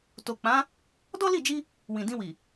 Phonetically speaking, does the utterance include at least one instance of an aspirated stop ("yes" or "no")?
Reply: no